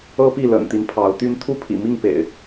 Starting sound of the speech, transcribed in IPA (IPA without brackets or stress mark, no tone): ɤ